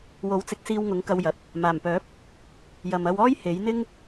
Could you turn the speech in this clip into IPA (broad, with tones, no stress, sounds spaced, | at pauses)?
w o˨˥ w t͡s ɪ˨˥ k̚ s iː˧ w ŋ ʊ˨˥ ŋ k ɐ˧ w j ɐ˨ t̚ | m aː˨˩ m p œː˨˥ p̚ | j ɐ˨ m ɐ˧ w ɔː˥ j h e˨˥ j n̪ ɪ˥ ŋ